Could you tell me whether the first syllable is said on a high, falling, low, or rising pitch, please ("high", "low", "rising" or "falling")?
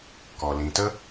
low